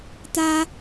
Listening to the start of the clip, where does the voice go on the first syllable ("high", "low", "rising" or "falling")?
high